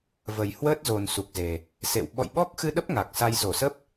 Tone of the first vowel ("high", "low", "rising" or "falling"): low